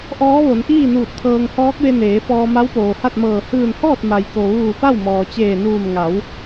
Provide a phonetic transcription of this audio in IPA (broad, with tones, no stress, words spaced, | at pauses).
ʔɔː˧˥ʋo˩˧nʔiː˥˨nuː˧˩t̚ t̪ʰɤː˧ŋ hɔː˧˥k̚ʋe˧ neː˩˧fɔː˧ ma˧˥wpoː˩ha˥˨t̚mɤː˧˩ hɯː˧˩nhɔː˥˨t̚ ma˩jko˩ʋuː˧˩ pa˥˨wmɔː˩t͡ɕeː˧˩nuː˧˩m ŋa˩˧w